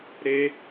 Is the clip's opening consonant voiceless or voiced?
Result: voiced